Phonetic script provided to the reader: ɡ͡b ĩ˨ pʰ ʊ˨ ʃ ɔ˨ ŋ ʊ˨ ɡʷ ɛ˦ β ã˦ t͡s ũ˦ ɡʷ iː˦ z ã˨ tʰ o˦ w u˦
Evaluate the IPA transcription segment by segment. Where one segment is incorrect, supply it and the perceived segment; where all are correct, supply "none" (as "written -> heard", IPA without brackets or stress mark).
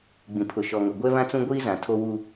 none